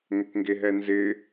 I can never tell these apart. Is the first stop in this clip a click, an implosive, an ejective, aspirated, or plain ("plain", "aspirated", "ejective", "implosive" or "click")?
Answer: plain